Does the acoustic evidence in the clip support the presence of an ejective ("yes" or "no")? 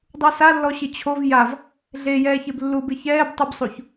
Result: no